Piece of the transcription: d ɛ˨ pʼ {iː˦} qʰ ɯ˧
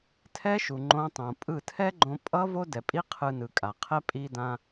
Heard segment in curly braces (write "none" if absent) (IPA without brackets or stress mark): i˦